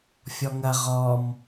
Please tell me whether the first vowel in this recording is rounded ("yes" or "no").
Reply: yes